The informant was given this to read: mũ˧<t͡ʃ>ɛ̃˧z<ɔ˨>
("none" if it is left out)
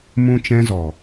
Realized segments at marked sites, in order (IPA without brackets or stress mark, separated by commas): t͡ʃ, ɔ˨